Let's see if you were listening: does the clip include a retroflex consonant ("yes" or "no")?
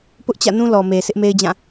no